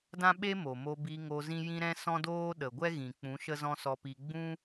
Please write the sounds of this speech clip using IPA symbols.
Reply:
dã˦ɓe˦ mo˨mo˧ bi˧ ŋo˧zĩ˦jĩ˦ ɾɛ̃˦sɔ̃˦doː˦ ɗə˨ɡʷɛ˦ɣĩ˨ k͡pũ˨˦ ʃə˦zɔ̃˦sɔ˧pi˧ ɡ͡bũ˦

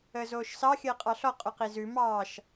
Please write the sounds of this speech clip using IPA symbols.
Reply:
əːzoːʃsɑ xʲəːqʼɑɬɔ qʼʉqizʉ mɑːʃ

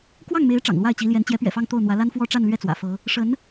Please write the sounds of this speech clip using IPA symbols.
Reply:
kwɑ˥˩ŋme˧˥ɪ̯ ʈ͡ʂɑ̰˨˩ŋ lwa˥˩ɪ̯t͡ɕi˧˥ljɛ˧˥n t͡ɕjɛ˧˥pɥɛ̰˨˩fɑ˥˧ŋ t̪o˥˩ʊ̯n̪wä˧˥ la˥nfwɔ˥ ʈ͡ʂa˥˧nlɥɛ˥˩ t͡swä̰˨˩fɤ˧˥ | ʂə˧˥n

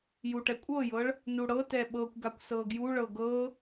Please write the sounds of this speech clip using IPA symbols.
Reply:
juʈɛkʷʼɤjɤɭ | nuɽɤtɛ ɓɤkʷɡakʷ sɤɡjuɭɤ ɡɤ

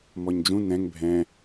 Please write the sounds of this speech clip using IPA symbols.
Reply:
mɔɲd͡ʒũ nɛ̃ŋ bʱɛ̃

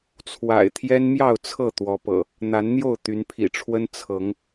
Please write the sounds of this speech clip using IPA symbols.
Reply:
t͡sʰwa̰˨˩ɪ̯ t̪ʰjɛ˦nmjɑ˥˨ʊ̯ t͡sʰɤ˥˨ t̪wɔ˨˦pɤ̰˨˩ | n̪a˨˦nn̪jo˥˨ʊ̯ t̪y˨˦npʰḭ˨˩ʈ͡ʂʰwə˦n t͡sʰɤ˨˦ŋ

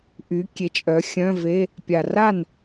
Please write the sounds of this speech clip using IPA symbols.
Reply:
ʔy˩˧kʲe˩˧t͡ʃʼœ˩˧ xʲœ̃˧˥˧ve˧˥˧ | pʲa˩ra˥˩n

